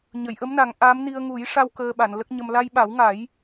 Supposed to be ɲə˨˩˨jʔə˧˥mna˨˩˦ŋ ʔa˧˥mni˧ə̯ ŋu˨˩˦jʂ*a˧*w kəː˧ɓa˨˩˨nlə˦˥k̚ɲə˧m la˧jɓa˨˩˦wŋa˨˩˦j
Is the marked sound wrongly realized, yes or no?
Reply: no